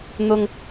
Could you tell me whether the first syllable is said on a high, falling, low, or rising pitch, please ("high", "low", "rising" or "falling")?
high